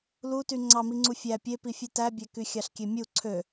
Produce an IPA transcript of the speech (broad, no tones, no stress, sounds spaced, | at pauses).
l u t y ŋ͡ǀ ɑ m i ŋ͡ǀ u fʲ æ pʲ e p i fʲ ɯ t æ bʲ æ k y xʲ ɑ ɬ kʲ e mʲ u ǀʰ ø